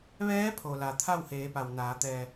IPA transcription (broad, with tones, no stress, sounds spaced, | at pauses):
ʋ ɛː˧˥ pʰ o˩ l a˩ t̪ʰ a˥˨ w h eː˩˧ p a˩ w n aː˩˧ t̪ ɛː˧